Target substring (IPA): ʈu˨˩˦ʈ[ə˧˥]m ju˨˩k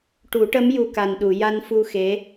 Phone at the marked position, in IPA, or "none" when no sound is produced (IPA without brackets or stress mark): ə˧˥